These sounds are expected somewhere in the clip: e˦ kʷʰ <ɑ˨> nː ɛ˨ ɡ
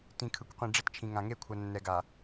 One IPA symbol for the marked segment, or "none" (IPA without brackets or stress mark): ʌ˨